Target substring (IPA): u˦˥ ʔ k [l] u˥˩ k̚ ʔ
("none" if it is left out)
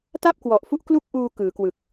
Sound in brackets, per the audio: l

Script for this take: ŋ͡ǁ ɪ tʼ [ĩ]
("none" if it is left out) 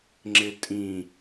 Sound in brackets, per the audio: ĩ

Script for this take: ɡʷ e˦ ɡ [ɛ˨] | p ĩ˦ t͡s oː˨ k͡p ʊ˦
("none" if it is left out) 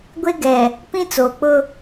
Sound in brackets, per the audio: ɛ˨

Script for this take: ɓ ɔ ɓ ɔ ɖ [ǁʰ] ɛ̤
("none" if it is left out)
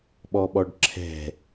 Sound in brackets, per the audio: ǁʰ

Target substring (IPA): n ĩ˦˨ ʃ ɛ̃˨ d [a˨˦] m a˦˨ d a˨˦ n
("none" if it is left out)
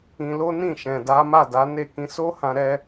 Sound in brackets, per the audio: a˨˦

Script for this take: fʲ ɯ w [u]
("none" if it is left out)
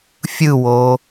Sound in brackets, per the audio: o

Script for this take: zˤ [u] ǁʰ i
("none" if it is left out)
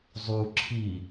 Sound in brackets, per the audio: u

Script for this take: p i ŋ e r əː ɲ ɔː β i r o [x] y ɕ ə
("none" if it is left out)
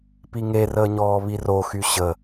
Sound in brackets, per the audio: x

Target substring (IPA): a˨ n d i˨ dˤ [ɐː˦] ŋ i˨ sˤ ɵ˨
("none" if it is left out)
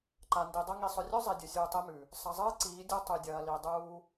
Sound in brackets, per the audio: ɐ˦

